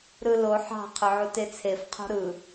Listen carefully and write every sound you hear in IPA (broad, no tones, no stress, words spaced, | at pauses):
ɾɯlo ħɑ̤ qʰʏʕutet͡sʰef qʰo̤ɾɯ